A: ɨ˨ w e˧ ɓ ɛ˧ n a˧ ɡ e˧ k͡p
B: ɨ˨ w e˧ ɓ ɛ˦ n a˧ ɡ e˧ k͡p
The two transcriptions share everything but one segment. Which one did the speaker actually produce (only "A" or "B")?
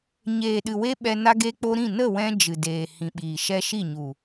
A